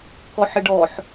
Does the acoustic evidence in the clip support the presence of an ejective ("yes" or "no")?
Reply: no